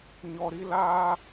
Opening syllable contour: high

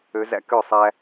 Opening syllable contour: rising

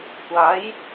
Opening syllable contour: rising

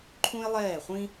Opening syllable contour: high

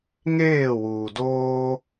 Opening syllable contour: falling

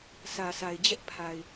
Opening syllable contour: low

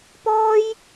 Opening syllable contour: high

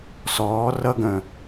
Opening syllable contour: rising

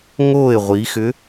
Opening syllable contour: falling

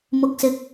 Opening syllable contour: low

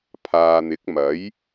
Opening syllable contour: low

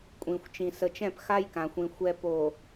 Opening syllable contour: low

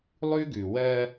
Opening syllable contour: high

